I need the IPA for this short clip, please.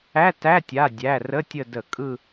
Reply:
æ˧˥˧ t æ˧˥˧ tʲ a˩˧˩ dʲ æ˩˧˩ r ə˧˥˧ tʲ ə˦˨ d ə˧˩˧ kʼ ɯ˦˨

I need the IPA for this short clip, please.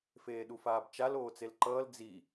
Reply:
f eː ɗ u f aː b t͡ʃ a l oː t͡s e l ǃ ʌː l d͡z i

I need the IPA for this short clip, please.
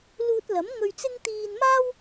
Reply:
l uː˧ t̚ l ɐ˨˥ m ŋ ɵ˧ ɥ t͡s ɪ˥ ŋ t̪ iː˧ n m aː˥ w

